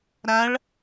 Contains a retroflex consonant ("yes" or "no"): yes